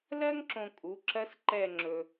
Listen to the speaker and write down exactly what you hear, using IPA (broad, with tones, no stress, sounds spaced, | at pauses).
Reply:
l ɜ˥ ŋ ǁ õ˧ kʼ u˩˧˩ ǁ ɜ˥ s ǃ ɛ˥˧ ŋ͡ǁ ɵ˧